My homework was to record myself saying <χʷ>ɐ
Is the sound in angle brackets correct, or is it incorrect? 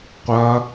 incorrect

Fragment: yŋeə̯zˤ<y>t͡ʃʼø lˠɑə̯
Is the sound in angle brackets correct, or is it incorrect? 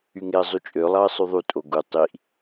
correct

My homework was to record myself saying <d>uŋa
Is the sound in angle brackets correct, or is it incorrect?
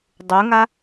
incorrect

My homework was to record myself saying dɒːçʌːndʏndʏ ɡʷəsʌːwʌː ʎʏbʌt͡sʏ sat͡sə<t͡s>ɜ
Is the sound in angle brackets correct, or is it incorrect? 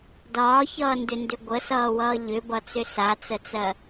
correct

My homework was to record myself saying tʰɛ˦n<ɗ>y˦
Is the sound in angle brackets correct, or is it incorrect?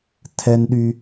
correct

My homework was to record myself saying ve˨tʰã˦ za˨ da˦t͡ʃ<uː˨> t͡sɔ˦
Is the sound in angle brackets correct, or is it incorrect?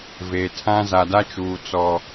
correct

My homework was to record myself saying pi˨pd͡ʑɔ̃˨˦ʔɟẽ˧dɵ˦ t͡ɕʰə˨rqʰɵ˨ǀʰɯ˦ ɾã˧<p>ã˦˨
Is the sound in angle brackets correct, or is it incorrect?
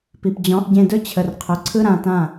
incorrect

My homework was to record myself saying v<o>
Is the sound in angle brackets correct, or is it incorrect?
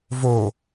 correct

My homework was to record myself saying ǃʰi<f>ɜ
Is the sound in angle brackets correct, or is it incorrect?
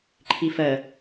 correct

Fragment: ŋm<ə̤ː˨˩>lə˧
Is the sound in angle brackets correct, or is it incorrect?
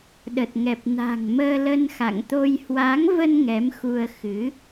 incorrect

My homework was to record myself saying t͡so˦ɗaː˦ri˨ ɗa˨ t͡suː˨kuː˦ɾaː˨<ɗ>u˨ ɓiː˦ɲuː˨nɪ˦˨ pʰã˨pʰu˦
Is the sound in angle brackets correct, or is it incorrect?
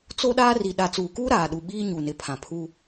correct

